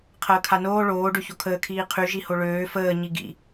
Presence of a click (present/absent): absent